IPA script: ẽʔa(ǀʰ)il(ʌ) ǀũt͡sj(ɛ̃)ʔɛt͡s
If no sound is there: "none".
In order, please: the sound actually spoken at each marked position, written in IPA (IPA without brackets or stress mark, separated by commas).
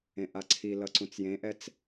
ǀʰ, ʌ, ẽ